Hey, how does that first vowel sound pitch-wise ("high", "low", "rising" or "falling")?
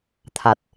low